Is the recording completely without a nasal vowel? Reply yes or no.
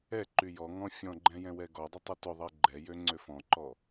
no